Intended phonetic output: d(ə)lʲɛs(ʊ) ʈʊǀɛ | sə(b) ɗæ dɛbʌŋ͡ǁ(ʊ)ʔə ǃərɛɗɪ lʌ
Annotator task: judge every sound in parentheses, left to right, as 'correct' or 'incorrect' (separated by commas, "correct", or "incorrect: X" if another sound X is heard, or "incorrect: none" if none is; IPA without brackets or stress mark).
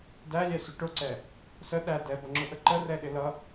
incorrect: æ, correct, incorrect: none, correct